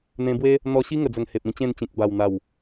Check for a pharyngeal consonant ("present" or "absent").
absent